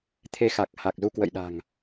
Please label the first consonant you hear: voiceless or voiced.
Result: voiceless